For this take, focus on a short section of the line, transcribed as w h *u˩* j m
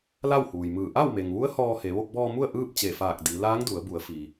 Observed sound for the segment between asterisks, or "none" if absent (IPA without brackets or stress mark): uː˩